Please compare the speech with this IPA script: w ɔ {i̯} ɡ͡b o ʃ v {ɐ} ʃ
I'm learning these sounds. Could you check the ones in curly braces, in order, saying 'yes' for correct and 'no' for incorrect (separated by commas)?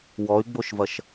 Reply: no, yes